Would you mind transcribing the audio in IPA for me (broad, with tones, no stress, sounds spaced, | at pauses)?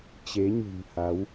t͡ɕ e˨˦ ɲ ɨ̤˨˩ ŋ h a˨˦ w